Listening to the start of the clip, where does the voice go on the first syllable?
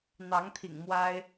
rising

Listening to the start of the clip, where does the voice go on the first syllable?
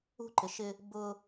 high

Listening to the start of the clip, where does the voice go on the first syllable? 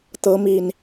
rising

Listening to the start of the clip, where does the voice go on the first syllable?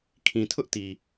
low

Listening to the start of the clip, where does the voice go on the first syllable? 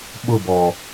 falling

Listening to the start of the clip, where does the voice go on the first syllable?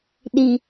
low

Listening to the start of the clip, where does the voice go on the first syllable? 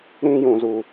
high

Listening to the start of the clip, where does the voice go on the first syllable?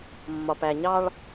low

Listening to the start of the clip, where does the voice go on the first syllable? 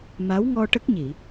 rising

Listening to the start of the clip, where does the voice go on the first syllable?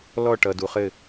falling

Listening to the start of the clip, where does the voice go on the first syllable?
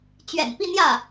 low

